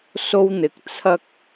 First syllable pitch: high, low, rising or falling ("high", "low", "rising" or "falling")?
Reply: high